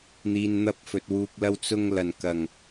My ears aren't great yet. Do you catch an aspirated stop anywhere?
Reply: no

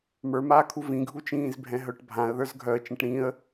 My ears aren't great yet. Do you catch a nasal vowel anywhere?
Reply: yes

